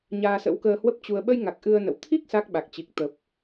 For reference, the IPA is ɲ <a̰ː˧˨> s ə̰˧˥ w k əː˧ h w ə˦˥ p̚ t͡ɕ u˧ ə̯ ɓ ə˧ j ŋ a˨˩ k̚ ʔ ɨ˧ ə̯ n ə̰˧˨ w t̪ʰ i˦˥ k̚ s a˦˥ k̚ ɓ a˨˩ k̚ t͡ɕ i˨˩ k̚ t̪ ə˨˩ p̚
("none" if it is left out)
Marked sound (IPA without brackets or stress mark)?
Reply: aː˧